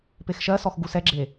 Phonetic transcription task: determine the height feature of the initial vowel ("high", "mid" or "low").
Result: mid